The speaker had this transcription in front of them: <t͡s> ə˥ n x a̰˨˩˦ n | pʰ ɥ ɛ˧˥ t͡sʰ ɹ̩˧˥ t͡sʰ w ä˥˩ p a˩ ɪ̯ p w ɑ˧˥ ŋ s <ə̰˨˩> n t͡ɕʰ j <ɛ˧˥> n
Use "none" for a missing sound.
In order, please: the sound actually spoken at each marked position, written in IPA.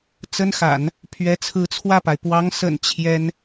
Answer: t͡s, ə̰˨˩, ɛ˥

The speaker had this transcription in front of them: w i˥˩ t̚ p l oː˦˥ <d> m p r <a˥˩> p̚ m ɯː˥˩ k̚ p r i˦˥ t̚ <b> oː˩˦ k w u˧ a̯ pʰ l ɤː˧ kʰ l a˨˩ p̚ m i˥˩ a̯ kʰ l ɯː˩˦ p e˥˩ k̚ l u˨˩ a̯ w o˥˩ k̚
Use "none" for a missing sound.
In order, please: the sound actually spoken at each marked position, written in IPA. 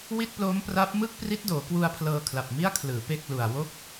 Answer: none, a˦˥, d

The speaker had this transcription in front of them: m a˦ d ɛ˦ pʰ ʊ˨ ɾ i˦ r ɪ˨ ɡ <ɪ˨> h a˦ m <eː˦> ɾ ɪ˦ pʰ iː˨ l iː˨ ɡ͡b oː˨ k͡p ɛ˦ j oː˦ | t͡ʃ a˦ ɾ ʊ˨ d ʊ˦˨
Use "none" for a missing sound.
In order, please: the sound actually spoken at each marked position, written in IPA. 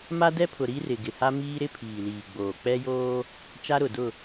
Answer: ɪ˨, iː˦

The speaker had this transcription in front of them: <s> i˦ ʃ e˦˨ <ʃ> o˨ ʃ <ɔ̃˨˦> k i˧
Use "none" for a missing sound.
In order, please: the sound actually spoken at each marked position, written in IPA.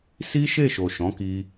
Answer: s, ʃ, ɔ̃˨˦

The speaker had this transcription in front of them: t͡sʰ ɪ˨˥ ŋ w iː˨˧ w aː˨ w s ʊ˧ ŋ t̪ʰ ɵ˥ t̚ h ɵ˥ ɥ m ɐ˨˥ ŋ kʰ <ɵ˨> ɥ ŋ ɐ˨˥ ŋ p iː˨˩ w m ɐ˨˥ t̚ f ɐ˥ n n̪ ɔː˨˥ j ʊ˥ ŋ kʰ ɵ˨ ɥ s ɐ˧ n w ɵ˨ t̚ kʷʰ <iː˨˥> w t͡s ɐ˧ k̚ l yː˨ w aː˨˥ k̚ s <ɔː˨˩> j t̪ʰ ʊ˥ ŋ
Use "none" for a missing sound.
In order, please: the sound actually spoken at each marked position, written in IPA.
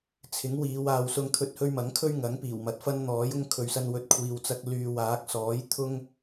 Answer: ɵ˥, iː˨, ɔː˨˥

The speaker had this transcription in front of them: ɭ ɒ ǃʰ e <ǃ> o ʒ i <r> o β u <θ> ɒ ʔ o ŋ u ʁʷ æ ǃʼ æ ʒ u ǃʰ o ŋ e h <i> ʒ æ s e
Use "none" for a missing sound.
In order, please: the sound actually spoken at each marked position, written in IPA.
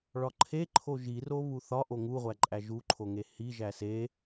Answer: ǃʰ, r, θ, i

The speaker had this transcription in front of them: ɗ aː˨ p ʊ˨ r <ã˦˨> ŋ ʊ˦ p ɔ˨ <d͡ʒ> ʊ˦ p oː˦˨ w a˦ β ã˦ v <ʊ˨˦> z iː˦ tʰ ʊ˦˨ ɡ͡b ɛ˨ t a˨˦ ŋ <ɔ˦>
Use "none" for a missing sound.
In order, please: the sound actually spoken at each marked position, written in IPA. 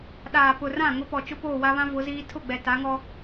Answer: ã˦˨, t͡ʃ, ʊ˨˦, ɔ˦

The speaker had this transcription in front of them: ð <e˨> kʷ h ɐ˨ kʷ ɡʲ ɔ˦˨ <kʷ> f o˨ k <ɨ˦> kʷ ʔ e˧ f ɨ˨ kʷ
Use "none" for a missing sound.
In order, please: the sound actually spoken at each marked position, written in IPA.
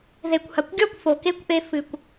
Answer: e˨, kʷ, e˦

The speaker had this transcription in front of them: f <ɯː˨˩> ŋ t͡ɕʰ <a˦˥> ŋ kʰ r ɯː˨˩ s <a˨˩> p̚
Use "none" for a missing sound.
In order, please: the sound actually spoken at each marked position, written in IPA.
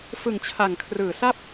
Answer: ɯ˨˩, a˨˩, a˥˩

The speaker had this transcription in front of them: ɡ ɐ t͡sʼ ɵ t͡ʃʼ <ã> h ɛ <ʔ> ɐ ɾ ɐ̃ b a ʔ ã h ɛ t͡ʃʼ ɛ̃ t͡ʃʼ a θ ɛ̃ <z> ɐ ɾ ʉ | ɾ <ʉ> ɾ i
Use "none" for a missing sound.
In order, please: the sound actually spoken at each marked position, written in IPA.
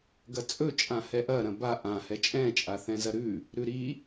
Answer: ã, ʔ, z, ʉ

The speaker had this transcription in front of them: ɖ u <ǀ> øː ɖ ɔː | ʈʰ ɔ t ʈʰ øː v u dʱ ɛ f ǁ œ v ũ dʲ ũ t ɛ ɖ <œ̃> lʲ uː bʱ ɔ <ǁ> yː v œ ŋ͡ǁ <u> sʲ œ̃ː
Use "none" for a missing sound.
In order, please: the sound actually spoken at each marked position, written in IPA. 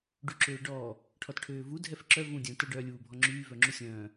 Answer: ǁ, œ, ŋ͡ǁ, u

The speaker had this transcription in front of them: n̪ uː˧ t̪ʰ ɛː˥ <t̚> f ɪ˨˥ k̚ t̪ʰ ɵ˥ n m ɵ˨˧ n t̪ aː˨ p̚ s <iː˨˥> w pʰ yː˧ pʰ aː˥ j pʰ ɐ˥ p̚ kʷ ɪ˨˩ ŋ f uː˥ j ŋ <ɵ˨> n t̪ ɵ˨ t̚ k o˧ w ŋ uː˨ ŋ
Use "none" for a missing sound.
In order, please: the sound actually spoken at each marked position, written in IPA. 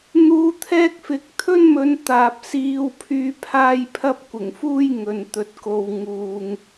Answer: k̚, iː˧, ɵ˨

